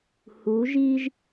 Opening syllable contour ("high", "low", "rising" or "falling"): rising